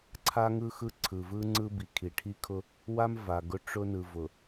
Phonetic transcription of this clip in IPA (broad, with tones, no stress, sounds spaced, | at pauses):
ǀʰ a˦ ŋ ɯ˦ x ɯ˦ ǀʰ ɯ˨ v ɯ˦ ŋ͡ǀ ɯ˦ b i˨ kʰ i˨ ʈʰ i˦ kʰ ʊ˦ | w a˦ m v a˨ ɡ ʊ˦ ʈ͡ʂ ʊ˦ n ɯ˨ v ʊ˨